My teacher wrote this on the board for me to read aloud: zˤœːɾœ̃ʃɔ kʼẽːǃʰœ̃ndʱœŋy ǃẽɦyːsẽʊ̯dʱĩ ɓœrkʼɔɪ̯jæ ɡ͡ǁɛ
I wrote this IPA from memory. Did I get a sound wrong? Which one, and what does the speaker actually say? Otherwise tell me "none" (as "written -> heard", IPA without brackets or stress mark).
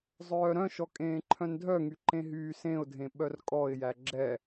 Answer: ĩ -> ẽ